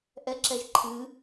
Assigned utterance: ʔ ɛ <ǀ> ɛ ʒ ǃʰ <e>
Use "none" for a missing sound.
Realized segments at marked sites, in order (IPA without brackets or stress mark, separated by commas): ǁ, ɨ